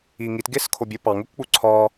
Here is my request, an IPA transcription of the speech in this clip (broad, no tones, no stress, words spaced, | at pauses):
i ŋit ɡeskʰobʲɵ pɑŋ ɵkʷk͡pu ǀʰɒ